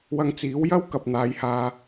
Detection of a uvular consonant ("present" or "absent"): absent